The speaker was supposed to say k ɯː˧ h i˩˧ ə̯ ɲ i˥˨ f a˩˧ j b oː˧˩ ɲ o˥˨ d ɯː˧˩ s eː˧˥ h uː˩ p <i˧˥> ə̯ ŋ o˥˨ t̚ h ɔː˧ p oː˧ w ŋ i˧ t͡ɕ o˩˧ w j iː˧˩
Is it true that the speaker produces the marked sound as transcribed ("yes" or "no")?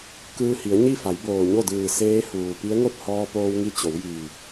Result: yes